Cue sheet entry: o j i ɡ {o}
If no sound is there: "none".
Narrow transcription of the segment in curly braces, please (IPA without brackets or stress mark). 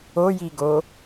o